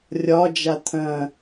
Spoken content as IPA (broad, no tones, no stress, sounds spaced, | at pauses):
rʲ ɒ d͡ʒ a t̪ʰ ɐ̃